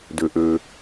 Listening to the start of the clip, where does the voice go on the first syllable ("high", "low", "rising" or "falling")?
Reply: low